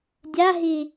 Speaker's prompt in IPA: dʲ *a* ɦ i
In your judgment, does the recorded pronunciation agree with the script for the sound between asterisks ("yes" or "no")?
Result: yes